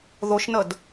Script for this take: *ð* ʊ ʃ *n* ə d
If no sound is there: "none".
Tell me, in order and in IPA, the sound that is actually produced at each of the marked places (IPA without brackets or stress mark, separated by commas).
ð, n